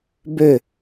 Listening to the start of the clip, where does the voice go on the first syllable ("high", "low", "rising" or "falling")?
falling